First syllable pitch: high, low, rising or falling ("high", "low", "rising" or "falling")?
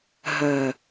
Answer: low